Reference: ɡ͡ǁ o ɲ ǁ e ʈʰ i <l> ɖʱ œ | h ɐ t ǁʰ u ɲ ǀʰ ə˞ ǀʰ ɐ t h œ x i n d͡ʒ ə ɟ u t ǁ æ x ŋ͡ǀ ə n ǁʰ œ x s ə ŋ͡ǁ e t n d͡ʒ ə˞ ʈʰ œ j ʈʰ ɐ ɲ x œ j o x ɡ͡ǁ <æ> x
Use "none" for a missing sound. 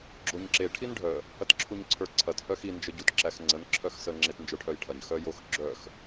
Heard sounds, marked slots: n, œ

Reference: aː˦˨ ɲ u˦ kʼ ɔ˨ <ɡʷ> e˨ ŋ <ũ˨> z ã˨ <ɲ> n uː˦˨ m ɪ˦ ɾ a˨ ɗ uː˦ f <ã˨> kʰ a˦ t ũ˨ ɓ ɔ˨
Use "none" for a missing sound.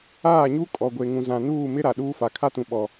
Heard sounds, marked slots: ɡʷ, ũ˨, none, a˨

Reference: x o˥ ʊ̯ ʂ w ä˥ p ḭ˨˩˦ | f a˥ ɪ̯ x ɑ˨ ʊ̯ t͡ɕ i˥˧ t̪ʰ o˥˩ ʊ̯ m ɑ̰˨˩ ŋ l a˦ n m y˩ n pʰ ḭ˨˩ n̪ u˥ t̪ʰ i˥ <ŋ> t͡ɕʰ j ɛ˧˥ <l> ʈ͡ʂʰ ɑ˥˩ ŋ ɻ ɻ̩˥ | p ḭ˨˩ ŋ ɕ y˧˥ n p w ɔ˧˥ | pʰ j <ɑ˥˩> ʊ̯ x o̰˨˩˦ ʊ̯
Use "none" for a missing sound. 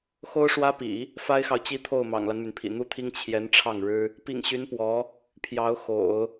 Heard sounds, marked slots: ŋ, n, ɑ˧˥

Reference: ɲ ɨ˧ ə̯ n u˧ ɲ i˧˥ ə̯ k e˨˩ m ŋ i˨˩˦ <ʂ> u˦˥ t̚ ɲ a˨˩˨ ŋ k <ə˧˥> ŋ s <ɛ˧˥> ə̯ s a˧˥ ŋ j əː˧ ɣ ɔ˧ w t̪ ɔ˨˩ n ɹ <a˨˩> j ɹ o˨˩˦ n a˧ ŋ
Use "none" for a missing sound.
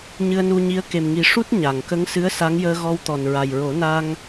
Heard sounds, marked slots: ʂ, ə˧˥, ɨ˧˥, a˨˩

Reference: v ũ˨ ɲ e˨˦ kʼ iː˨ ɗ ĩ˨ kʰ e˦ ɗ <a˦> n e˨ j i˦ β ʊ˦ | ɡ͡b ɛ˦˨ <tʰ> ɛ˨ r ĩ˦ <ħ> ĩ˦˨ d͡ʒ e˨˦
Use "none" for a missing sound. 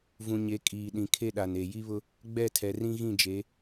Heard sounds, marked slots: a˨, tʰ, ɣ

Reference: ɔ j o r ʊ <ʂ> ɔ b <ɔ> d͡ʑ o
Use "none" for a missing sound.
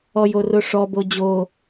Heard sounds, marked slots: ʂ, o

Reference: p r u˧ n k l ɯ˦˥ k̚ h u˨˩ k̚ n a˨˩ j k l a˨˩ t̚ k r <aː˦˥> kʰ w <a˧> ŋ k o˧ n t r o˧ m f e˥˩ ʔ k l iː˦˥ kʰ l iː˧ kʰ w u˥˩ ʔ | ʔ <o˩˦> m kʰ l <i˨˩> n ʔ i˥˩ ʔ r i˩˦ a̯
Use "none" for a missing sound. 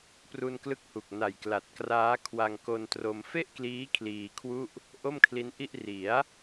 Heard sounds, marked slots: aː˦˥, a˧, o˥˩, i˦˥

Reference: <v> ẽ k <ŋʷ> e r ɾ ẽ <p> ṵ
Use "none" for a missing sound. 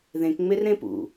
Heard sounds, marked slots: ð, ŋ͡m, p

